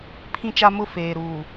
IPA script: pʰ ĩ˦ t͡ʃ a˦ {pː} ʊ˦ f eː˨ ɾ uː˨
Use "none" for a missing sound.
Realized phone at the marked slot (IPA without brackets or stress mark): m